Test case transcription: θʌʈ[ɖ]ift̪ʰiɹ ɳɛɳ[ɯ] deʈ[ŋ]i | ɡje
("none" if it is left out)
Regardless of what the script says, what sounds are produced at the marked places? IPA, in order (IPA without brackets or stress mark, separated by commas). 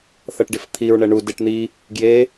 ɖ, u, n̪